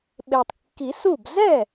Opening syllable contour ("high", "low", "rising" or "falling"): low